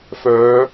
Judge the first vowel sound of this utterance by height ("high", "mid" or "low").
mid